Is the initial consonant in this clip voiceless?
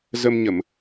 no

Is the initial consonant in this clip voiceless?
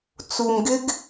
yes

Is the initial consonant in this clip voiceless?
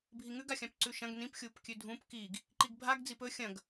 no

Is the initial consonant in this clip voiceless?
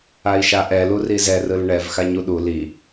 yes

